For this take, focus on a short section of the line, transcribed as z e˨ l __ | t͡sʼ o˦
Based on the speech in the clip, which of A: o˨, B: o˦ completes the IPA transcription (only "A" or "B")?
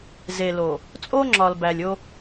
A